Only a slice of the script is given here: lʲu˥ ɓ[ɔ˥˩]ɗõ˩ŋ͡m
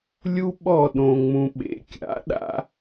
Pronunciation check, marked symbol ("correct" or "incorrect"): correct